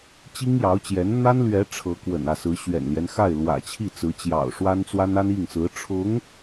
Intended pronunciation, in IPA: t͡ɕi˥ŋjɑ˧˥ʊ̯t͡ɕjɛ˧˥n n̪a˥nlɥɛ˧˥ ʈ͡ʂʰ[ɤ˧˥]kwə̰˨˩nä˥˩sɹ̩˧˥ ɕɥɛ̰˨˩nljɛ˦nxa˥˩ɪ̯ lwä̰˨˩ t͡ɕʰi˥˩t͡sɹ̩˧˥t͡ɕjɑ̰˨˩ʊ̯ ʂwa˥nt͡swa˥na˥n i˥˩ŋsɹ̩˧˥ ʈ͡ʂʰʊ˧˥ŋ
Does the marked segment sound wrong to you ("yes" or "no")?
no